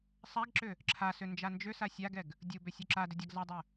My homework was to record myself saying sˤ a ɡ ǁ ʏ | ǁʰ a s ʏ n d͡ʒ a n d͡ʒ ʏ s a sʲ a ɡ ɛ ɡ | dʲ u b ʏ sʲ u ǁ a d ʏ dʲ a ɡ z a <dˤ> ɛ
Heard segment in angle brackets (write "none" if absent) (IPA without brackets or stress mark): dˤ